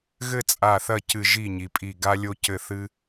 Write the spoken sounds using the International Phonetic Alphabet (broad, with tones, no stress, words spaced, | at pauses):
ɣɘ˥˧t͡sʼa˧˩θɐ˥˩cɨ˧˩ ʒi˥˩ɲi˩pʼi˧˩ ɡa˥lʲo˥cɘ˥˩ θɨ˥